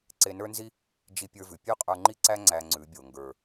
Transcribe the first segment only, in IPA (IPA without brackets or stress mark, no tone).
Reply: ǀ